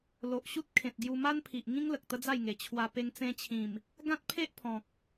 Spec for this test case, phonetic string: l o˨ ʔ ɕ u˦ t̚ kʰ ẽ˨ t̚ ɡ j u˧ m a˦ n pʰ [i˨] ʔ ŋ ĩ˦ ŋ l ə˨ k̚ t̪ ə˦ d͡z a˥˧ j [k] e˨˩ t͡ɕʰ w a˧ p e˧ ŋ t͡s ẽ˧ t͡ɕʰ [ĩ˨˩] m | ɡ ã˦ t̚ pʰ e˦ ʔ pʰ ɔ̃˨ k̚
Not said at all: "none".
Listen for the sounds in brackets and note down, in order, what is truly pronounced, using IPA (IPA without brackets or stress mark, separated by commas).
i˨, ŋ, ĩ˨˩